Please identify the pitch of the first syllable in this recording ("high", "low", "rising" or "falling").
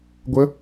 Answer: rising